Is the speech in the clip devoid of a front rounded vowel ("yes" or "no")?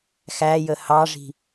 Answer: yes